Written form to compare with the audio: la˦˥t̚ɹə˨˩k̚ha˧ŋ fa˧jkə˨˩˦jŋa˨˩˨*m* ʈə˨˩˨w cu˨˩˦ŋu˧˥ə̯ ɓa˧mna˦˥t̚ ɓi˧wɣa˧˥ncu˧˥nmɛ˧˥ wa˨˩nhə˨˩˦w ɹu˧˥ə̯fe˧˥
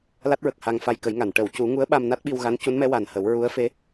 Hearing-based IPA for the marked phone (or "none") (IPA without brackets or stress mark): n